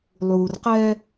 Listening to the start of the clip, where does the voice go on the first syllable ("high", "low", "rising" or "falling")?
low